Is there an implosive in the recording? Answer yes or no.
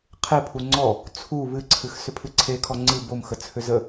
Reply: no